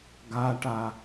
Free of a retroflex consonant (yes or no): no